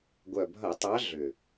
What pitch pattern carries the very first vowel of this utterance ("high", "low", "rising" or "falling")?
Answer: low